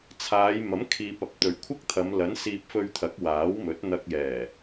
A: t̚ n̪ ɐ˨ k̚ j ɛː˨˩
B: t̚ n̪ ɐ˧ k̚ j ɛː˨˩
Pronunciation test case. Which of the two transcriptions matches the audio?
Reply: B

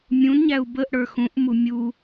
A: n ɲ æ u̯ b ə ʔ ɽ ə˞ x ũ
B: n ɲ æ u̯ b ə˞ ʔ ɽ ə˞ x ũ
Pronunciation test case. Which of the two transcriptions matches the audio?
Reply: A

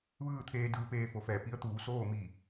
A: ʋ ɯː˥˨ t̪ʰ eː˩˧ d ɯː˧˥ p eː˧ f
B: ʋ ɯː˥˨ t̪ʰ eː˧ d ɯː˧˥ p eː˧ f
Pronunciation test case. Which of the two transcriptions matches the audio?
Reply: B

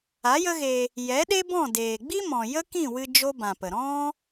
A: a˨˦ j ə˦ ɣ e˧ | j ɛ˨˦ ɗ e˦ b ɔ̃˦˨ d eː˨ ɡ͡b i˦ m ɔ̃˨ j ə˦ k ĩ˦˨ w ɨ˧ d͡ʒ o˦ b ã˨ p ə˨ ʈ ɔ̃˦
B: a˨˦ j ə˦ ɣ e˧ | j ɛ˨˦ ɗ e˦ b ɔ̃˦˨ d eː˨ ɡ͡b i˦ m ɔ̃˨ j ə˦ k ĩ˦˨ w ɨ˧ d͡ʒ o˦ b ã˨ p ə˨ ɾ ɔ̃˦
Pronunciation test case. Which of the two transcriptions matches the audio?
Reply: B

